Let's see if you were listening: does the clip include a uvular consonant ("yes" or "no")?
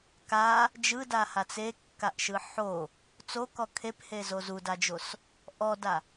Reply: no